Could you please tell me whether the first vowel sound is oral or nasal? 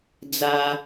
oral